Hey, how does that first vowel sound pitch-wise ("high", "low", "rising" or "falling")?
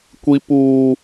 high